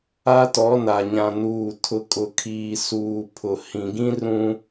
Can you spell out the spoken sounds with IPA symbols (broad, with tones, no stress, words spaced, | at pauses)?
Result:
a˦tɔ˨˦na˨ ɲã˨nuː˨ tʰʊ˨kʼʊ˨kʰiː˨ suː˨ pʰʊ˨ hĩ˨ɡĩ˦ rũ˦